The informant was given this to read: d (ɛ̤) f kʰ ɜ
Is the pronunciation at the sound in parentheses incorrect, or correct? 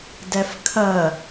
incorrect